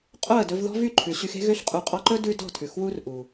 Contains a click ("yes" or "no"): yes